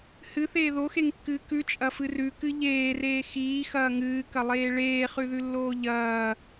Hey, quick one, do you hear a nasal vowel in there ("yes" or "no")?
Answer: no